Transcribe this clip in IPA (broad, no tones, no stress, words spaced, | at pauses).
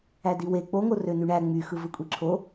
ædiwe k͡poŋo rønyɳæ ŋ͡myxɯ vɯkʷʼiǁʰo